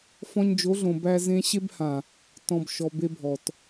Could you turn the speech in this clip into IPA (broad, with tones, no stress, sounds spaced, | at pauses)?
f ɔ̃˧ ɲ d͡ʒ o˨˦ ɮ õ˨ b æ˧ z ẽ˧ ɕ e˧ b h ã˨ | t ɔ̃˨ b ʃ ɔ˨ b e˧ bʱ ɔ˨ t